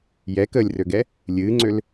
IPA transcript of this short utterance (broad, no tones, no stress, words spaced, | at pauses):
jɛkəːlʲrøɡɛ | lʲɨːŋ͡ǀøl